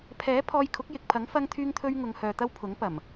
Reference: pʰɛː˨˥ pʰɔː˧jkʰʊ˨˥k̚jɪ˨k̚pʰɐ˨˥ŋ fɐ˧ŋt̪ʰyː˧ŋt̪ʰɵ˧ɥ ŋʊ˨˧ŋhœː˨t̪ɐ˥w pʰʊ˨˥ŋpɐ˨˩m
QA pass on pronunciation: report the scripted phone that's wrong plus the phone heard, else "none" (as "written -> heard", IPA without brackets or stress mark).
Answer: none